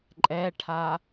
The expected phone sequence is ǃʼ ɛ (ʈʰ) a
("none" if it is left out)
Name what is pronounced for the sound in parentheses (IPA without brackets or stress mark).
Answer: ʈʰ